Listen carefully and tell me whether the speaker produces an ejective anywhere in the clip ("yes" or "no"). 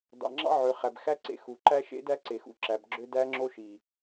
no